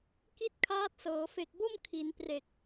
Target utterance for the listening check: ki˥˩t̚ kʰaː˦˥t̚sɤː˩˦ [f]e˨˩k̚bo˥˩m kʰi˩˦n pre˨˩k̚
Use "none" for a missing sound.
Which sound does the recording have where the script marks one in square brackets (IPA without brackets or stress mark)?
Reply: f